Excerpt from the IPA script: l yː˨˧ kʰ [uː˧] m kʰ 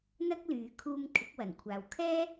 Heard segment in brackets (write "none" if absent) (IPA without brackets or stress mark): uː˧